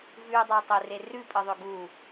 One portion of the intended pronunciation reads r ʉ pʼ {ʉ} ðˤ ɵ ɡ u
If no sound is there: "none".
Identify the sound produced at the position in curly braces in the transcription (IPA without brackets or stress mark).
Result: ɨ